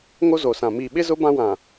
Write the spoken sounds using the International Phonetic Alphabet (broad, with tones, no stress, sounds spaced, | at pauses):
ŋ o˦ z o˨ s ã˨ m iː˨ ɓ ɪ˦ z ʊ˦ b ã˦ w ã˨